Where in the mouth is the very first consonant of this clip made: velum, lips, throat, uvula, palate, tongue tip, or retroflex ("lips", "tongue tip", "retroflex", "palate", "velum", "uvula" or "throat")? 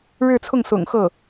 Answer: retroflex